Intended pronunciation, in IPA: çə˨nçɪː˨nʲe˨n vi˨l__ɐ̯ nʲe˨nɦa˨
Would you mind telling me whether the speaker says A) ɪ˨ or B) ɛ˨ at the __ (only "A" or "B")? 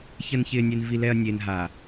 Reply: B